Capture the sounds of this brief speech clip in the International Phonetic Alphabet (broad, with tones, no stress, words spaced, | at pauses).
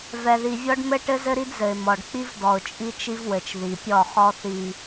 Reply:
vɛ˨ði˨vʲɔ˦ɖ mɘ˦ʈɘ˦zɘ˦ ɾi˦dzɘ˨ɪ̯ mɔ˨ɖk͡pi˦v dɔ˨ʊ̯t͡ʃʼi˦t͡ʃi˦vwɘ˨t͡ʃ ði˨pʲɔ˦˨ χɔ˦θi˨